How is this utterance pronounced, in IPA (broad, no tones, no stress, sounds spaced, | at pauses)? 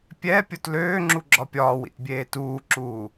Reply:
pʲ ɛ pʲ o t l øː ŋ͡ǁ u ɡ͡ǁ ɒ pʲ ɒː w ḭ t bʲ eː t uː ǁ uː